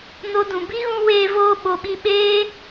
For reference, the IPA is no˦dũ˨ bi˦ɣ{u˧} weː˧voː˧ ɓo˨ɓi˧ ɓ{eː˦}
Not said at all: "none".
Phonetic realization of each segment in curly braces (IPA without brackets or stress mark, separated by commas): ũ˧, eː˦